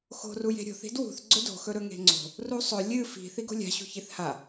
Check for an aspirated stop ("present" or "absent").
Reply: absent